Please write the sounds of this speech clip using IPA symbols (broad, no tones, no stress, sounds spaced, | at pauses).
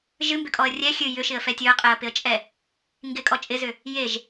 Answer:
ʒ ɨ m b ʏ kʼ ɔ ə̯ rʲ ɛ xʲ ɨ j ʏ ʃ ɪ ə̯ f ɛ tʲ ɵ ə̯ qʼ ɛ ə̯ p ɪ ə̯ t͡ʃʼ ɛ | ŋ ɡ ɪ kʼ ɔ t͡ʃʼ ɪ z ʏ | j e ʒ